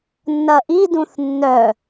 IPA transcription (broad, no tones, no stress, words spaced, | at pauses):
nːɐʔi dũθnːœ